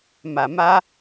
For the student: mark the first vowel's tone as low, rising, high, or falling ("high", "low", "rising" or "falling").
low